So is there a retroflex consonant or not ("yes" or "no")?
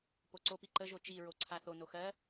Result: no